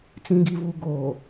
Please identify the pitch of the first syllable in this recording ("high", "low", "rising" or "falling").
low